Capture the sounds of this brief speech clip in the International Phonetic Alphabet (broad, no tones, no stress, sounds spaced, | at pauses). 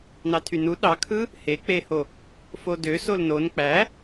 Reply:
n ɑ tʰ y n u ɗ ɑ kʰ ɯ | h e k͡p e h o | f o d ø s o l n o n k͡p æ